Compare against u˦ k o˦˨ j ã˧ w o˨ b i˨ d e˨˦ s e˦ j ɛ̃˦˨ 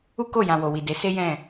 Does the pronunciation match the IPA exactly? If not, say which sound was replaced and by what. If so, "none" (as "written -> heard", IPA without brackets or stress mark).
b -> w